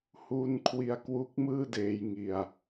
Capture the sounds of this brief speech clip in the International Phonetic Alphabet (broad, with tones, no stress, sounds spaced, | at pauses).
h uː˧ n kʰ w i˧ a̯ k w u˦˥ k̚ m ɯː˥˩ d eː˧ j ŋ i˧ a̯